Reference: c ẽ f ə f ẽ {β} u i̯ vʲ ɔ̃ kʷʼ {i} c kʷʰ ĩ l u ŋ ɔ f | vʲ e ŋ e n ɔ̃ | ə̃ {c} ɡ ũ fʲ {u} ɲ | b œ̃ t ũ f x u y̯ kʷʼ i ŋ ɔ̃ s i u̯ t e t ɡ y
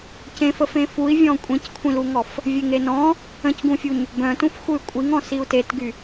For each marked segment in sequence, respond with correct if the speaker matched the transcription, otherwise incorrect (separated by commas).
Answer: incorrect, incorrect, correct, correct